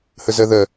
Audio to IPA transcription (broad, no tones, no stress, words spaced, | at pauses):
həzɜðɜ